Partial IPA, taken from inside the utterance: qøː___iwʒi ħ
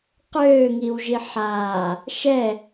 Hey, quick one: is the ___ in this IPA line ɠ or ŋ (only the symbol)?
ŋ